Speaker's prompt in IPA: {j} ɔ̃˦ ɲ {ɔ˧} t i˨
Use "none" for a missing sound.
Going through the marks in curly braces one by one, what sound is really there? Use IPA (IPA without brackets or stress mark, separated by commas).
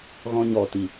ɣ, ɔ˧